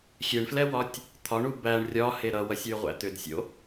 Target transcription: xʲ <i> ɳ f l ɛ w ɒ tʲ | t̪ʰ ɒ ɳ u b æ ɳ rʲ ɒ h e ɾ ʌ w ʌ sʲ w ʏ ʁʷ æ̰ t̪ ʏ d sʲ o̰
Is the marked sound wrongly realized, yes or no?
yes